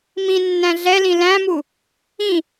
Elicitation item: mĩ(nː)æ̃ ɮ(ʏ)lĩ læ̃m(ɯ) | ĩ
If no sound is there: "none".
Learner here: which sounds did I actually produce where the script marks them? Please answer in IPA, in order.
nː, ɛ, u

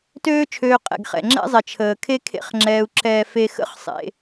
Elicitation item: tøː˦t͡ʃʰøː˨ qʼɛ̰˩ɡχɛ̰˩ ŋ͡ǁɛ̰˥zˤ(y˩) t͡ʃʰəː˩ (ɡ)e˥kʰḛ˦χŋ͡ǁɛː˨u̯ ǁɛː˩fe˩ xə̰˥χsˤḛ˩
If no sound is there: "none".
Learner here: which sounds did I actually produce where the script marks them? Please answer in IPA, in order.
e˩, kʰ

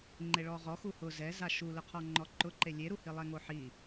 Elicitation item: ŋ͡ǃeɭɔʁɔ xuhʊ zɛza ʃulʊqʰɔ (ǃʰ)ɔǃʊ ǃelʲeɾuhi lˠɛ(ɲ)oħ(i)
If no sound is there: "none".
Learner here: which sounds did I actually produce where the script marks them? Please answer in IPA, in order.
ŋ͡ǃ, ŋ, i

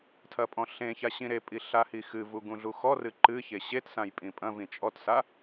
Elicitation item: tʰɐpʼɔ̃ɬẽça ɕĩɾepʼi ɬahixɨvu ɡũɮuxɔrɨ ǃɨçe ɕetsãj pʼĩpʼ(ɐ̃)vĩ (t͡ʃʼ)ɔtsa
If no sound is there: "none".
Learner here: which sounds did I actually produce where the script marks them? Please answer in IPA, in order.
ɐ̃, t͡ʃʼ

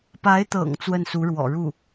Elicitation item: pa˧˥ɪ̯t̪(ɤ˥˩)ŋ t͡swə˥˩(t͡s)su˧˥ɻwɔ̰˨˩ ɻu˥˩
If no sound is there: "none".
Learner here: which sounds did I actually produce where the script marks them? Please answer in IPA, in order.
ɤ̰˨˩, n

